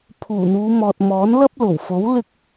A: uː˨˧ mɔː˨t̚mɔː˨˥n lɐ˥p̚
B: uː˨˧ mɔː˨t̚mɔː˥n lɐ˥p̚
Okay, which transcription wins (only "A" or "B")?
A